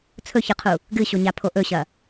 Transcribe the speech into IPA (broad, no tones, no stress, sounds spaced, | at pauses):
t͡sʰ ɵ ç ɨ qʰ u | ɡ ɨ ɕ o ɲ a pʰ o ʔ ɵ ɕ ɐ